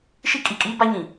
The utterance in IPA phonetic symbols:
ʃ i˦ kʼ i˨ kʼ iː˦ b a˦ ɲ ĩ˨

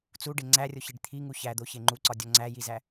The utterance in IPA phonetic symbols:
t͡s u ɖ e ŋ͡ǀ æ rʲ o ç i ɖ t̪ʰ i ŋ u ç æ d̪ o ç e ŋ͡ǃ u ǀ ɒ dʲ ɒ ŋ͡ǀ æ j i z æ

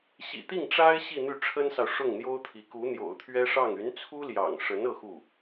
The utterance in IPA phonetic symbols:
ɕ ḭ˨˩ t̪ i˥˩ ŋ ʈ͡ʂ a˥ ɪ̯ ɕ i˥˧ n̪ y˥˩ ʈ͡ʂʰ ə˥ n s ɑ˨ ʊ̯ ʂ ʊ˥˩ ŋ n̪ j o˥ ʊ̯ t̪ʰ i˧˥ k u˧˥ n̪ j o̰˨˩ ʊ̯ t̪ʰ ɥ ɛ˥ ʂ ɑ˥˩ ŋ y˧˥ n t͡sʰ u˥ l j ɑ̰˨˩ ŋ ʂ ə˧˥ n ɤ˥˧ x u˥˩

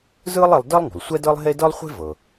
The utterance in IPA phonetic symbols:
z ɯː˥ lˠ e˧ lˠ d əː˥ lˠ ŋ ṳ˩ lˠ sʷ ɛ˥ d ɤ˥ lˠ ɦ e˥ d ɤ˥ lˠ χʷ e̤˥ v ɤ˩

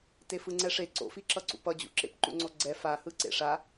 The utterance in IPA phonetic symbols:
t e f ɯ ŋ͡ǀ ɛ ʂ e ǀ o̰ f i ǁ ʌ ǀ ṵ p ʌ d͡ʑ ṵ ǁ ḛ p ǃ ṵ ŋ͡ǀ o ɡ͡ǀ ɛ f a h ɯ ǀ ḛ ʂ a

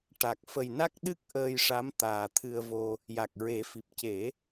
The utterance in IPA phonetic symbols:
ʈ a˨˩ k̚ f ə˨˩ j n a˦˥ k̚ ɗ ɨ˦˥ k̚ ʔ əː˧ j ʂ a˧˥ m t̪ aː˨˩ t̪ʰ ɨ˧ ə̯ v o˧ | j a˨˩ k̚ ɹ e˨˩˦ f i˨˩ p̚ c e˨˩˦

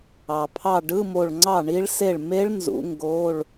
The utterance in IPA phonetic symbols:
ɑ˩ pʰ ɑ˧˩ ɖ ɯ˧˥˧ m o˧˩ ɭ ŋ͡ǀ ɑ˥˩ ɳ i˦˥ ɭ s e˥˩ ɭ m e˦˥ ɭ n z ṵ˨˥ ŋ ɡ oː˧˥˧ ɭ

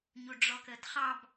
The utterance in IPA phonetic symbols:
ɲ u ɖ͡ʐ ɔ k əː t χ ɑ b

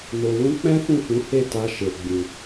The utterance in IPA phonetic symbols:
n o˨ w ũ˧ k͡p ɛ̃˦ f ũ˦˨ f ũ˨˦ h e˦˨ t a˧ ʃ e˨ ɡ͡b ĩ˨

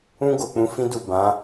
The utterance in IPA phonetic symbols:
ũ˧ ɡ o˨ k͡p ũ˨˦ f ĩ˦ d u˦˨ b ã˨˦

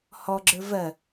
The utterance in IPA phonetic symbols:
h ɔ ɡ͡ǁ ə˞ v ɜ

